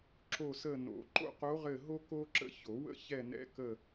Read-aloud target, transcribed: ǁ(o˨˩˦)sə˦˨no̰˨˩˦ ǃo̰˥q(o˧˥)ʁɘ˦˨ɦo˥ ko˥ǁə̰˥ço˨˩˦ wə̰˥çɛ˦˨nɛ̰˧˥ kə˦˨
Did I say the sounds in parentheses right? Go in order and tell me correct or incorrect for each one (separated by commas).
incorrect, correct